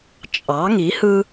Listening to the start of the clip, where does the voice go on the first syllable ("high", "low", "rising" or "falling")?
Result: rising